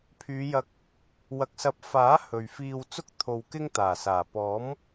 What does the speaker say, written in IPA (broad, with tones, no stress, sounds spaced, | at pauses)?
pʰ yː˨˧ j ɐ˧ k̚ | w ɐ˨ k̚ s ɐ˨˥ p̚ f aː˨˥ h ɵ˨ ɥ f iː˧ w t͡s ʊ˥ k̚ t̪ʰ o˨ w k ɪ˥ ŋ t̪ aː˨˩ s aː˨˩ p ɔː˨˥ m